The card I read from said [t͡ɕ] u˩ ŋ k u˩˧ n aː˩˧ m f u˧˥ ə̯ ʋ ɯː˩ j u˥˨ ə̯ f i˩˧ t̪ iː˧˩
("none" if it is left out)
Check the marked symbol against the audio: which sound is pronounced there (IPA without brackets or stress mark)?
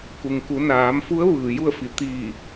k